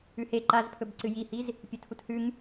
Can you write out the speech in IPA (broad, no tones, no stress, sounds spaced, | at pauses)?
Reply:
ʉ h e ǃ a z pʰ ɵ b ǀ ɨ j i h i z | pʲ ɵ tʰ u t h ʉ ŋ